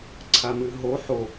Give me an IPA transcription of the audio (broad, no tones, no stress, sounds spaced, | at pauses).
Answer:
ǀʰ a m ɨ ɦ o ħ o